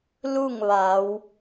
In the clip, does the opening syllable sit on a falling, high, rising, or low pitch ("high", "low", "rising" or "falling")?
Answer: falling